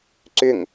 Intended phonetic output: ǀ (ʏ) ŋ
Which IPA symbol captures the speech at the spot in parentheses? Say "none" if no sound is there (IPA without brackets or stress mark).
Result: ʏ